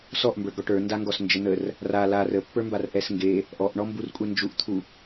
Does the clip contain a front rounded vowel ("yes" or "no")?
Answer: no